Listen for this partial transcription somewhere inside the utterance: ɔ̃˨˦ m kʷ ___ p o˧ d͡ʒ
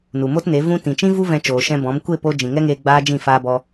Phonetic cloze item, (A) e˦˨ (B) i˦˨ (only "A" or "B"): A